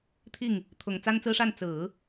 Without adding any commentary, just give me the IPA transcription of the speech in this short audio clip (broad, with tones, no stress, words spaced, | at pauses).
t̪ʰi˥˩ŋ | t̪ʰʊ˨˩ŋ t͡sa˥nt͡sɹ̩˥ʂa˥˩n t͡sɹ̩˨˩˦